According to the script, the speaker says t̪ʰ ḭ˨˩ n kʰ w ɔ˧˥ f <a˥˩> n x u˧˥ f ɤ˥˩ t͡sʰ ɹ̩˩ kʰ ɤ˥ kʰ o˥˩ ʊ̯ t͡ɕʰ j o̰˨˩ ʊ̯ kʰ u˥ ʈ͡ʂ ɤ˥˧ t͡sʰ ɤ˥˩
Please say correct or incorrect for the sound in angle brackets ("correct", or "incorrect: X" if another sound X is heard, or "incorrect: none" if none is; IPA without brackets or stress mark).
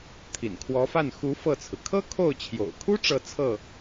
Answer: correct